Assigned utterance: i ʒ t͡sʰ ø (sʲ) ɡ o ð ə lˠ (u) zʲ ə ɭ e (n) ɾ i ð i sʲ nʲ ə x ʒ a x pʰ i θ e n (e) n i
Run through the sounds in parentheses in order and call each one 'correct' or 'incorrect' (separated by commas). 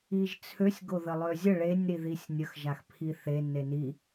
correct, incorrect, incorrect, correct